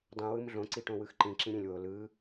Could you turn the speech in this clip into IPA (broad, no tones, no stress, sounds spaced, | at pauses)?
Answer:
dˤ ĩ w ɯ m ɮ õ ǀ i ʈ õ w ɯ x ǃ ĩ ǁ ĩ ɾʲ ẽ lʲ w o l ɯ